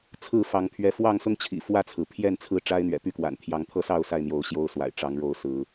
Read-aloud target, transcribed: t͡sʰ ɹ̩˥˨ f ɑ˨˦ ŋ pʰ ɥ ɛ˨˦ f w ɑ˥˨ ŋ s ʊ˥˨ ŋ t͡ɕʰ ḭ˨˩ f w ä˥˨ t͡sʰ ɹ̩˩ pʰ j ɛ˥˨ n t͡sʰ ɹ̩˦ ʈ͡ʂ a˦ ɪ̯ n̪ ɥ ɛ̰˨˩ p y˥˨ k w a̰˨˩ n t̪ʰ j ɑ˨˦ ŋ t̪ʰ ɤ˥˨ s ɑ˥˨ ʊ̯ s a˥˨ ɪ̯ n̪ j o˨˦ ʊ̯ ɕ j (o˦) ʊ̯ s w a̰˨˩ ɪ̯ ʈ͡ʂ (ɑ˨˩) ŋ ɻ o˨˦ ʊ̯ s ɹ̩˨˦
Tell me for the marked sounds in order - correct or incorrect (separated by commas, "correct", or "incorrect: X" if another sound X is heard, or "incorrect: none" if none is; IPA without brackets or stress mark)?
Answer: correct, incorrect: ɑ˨˦